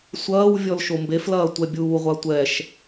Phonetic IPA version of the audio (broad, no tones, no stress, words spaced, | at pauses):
sʷɐːw vʲɔlʃombeflɐː tʷɛbʲuːʁʷa tʷɛʃ